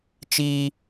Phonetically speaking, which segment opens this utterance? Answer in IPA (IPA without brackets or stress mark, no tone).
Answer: t͡ʃ